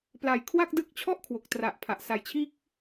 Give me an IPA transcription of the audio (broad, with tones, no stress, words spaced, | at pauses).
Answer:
pla˨˩j kʰwa˥˩k̚dɯ˦˥k̚t͡ɕʰɔ˥˩ʔ kʰwo˨˩k̚tra˨˩ʔpʰa˨˩ʔ sa˧jt͡ɕʰiː˥˩k̚